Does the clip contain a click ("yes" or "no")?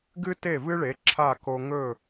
yes